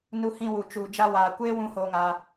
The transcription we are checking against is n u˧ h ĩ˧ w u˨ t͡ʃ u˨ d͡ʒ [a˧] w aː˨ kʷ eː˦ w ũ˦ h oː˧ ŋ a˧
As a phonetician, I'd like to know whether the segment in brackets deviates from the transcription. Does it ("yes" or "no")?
no